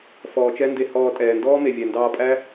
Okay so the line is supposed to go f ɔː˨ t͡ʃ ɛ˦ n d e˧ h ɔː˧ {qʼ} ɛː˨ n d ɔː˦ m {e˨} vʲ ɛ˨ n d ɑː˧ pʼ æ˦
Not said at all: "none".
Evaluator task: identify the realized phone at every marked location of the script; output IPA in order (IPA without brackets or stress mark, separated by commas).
tʼ, e˨